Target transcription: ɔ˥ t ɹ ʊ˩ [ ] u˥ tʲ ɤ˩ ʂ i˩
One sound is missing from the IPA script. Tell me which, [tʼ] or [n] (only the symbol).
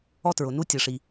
n